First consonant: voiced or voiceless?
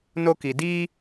voiced